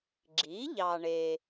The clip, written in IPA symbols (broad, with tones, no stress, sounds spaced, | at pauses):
ɡ͡ǁ i˩˥ ʎ ɑ˨ ɳ e˨